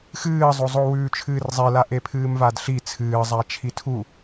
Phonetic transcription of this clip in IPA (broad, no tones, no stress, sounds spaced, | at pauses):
x ɨː zˤ o zˤ o w ʉː t͡ʃʰ ɨː r zˤ e l a ʔ e pʰ ɨː m v a d ɬ i t͡sʰ ɨː zˤ a t͡ʃʰ i tʰ u